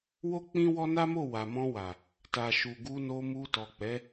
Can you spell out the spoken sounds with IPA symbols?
w o˦ k͡p ĩ˦ w ɔ˦ n a˦ m o˦˨ w a˨ m ɔ̃˧ w a˨ | t a˨ ʃ u˨ ɡ u˧ n o˧ m u˧ t ɔ˨ k͡p ɛ˨˦

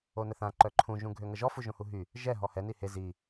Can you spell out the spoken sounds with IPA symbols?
o n ə θ ã ǃ œ ǃʰ ũ ʒ ũ ɡʱ ø ŋ ə ʒ ɔ f u ʒ õ h u ɦ y | ʒ ɛ ɦ ɔ h ɛ n i h e z i

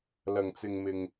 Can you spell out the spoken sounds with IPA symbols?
l ɐ˨˩ ŋ t͡s ɪ˨ ŋ m ɪ˨ ŋ

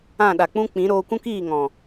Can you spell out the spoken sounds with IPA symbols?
ã˦˨ ɗ a˨ k͡p ũ˦ k͡p ĩ˨˦ ɾ oː˧ kʷ ũ˦ k iː˦˨ ŋ ɔ̃˨

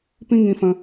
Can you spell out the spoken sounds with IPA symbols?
p ĩ˦ ŋ ĩ˧ f ə̃˧

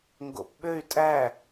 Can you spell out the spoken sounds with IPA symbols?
ŋ ɡ o̰ p ɓ ø y̯ tʼ æ

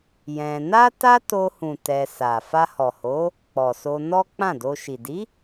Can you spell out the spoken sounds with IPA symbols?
j ɛ̃˧ n a˦ t a˦ t o˧ h ũ˨ t ɛ˧ s a˨ f a˧ h ɔ˨ h o˨˦ | k͡p ɔ˨ s o˧ n ɔ˦ k͡p ã˦˨ d o˧ ʃ i˨ d i˨˦

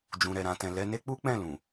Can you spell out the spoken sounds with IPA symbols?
d͡ʒ ũ˨ ɾ ɛ˨ ɾ ã˨ t ɛ̃˨ l ɛ˧ n e˦ k͡p u˦ k͡p ɛ̃˦˨ l ũ˨

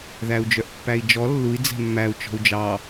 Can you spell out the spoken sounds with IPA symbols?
ð æ u̯ d͡ʒ œ ʔ pː æ i̯ d͡ʒ ɔ lː u i̯ d͡z ɛ̤ mː æ u̯ t͡ʃ ɔ̤ u̯ d͡ʒ ɑ

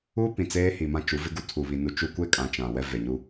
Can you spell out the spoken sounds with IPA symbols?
uː˦ p ĩ˨ t͡s eː˦ h i˨ m ã˦ t͡ʃ u˨˦ v ɪ˦ ɡ u˦ tʰ u˨ β i˨ n u˨ t͡ʃ u˦ kʷ e˦ kʼ ã˨ t͡ʃ ã˨ w ɛ˦ v e˨ ɲ u˦

